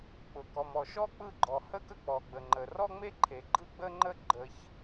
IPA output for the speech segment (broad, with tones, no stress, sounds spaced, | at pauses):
k͡p ʊ˩ k ɔ˩ m ɔ˩ ʃ ɔ˥ k͡p ɯ˥ ɡ͡ǃ ɔ˩ h ə˥ k ə˥ k͡p ɔ˩ ɡ͡b ə˩ ŋ͡ǃ ə˩ r ɔ˥ ŋ͡m e˥ ǃʰ e˩ ɡ͡ǃ ɯ˥ ɡ͡b ə˥ ŋ͡ǃ ə˥ ɡ͡ǃ ə˩ ç